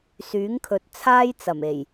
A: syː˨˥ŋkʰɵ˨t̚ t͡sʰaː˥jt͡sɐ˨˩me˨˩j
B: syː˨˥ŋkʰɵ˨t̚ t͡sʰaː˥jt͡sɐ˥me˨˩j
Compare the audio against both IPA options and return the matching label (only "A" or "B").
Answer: A